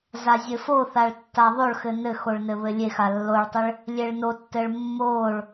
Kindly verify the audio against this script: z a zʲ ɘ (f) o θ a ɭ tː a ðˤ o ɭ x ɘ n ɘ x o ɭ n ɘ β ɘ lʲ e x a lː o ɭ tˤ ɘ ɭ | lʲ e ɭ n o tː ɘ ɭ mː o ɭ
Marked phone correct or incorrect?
correct